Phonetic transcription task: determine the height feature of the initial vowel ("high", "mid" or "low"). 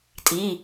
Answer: high